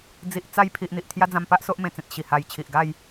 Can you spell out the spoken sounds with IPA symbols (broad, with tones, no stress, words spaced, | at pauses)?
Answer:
d͡zi˨ʔt͡sa˧j pʰi˨ʔ n̪i˨ʔt̪ʰja˦d͡zã˧mpa˦ʔ so˦ʔmẽ˨˩t͡sẽ˨t̚ ɕi˨˩ ha˧jt͡ɕʰi˨ʔ ɡa˥˧j